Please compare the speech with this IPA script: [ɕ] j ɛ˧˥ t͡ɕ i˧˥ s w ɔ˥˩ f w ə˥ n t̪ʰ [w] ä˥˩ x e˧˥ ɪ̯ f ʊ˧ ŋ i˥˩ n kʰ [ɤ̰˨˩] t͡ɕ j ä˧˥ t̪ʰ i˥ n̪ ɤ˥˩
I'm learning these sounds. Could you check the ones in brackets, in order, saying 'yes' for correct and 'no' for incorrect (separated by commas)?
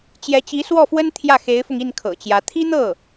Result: no, no, yes